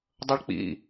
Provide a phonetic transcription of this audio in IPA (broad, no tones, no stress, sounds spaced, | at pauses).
dˤ ʌ ɭ k͡p ḭ